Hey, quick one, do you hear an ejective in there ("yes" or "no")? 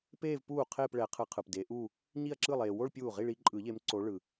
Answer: yes